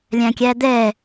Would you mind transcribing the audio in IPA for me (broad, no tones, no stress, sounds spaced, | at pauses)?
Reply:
lʲ æ̃ kʲ æ d̪ ɛ